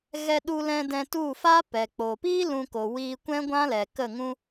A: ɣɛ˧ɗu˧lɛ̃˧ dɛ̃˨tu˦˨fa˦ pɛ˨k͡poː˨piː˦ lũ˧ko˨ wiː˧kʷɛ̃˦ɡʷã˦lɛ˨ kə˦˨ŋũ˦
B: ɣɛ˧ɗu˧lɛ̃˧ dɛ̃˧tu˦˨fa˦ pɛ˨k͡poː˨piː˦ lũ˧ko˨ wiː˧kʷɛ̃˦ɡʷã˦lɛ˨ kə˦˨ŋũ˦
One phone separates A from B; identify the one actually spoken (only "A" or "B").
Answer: B